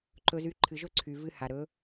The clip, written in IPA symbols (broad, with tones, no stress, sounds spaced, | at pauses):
ǃ ɵ˧ z y˧ ǃʰ ɨ˨ ʒ ɵ˦˨ ǀʰ y˨ v ɨ˧ h a˨ ɾ ɵ˨˦